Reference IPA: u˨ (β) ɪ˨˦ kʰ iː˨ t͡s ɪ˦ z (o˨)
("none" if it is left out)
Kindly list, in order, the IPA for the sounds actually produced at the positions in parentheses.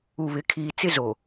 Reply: β, o˨

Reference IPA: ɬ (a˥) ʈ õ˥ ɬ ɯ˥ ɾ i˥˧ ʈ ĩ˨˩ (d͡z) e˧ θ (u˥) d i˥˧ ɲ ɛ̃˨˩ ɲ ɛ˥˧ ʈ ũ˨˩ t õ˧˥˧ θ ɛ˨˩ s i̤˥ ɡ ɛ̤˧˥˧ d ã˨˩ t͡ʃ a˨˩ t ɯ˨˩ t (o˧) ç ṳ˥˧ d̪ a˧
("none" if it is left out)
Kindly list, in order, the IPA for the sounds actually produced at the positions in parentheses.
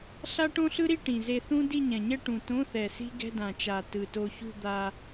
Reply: a˥, z, ũ˥, o˧

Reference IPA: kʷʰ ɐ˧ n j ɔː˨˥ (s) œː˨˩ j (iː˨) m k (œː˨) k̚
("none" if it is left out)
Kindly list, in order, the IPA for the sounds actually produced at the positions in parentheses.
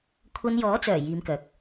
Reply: t͡s, iː˨˧, œː˨

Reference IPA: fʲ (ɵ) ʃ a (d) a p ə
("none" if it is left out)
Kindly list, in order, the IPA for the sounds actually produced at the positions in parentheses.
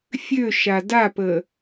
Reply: ø, d

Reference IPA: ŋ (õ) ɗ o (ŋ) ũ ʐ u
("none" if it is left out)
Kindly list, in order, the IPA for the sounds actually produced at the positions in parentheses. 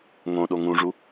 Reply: õ, ŋ

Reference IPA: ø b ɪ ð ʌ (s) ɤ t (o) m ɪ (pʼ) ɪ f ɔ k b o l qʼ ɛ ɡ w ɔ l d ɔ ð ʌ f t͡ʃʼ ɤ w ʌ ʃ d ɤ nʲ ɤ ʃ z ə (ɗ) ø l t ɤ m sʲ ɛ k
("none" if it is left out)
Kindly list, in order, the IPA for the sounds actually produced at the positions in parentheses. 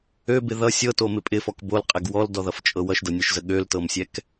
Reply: sʲ, o, pʼ, ɠ

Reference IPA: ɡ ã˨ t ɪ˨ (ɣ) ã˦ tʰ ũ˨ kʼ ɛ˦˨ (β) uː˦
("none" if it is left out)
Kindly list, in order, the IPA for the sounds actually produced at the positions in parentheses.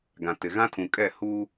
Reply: ɣ, h

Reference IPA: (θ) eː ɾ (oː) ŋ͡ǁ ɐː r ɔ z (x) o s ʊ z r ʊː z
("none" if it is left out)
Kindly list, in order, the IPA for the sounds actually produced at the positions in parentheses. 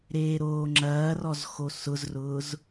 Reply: ɾ, oː, x

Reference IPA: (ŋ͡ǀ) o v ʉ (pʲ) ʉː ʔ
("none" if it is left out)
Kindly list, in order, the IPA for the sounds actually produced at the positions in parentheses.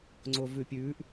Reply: ŋ͡ǀ, pʲ

